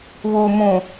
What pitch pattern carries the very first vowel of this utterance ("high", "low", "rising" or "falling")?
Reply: low